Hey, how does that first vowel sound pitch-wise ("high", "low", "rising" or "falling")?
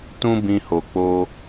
high